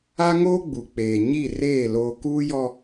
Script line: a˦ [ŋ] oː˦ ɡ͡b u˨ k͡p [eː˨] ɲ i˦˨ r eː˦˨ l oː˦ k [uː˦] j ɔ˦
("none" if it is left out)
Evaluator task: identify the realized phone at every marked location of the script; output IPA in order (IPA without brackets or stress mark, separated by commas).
ŋ, eː˨, uː˦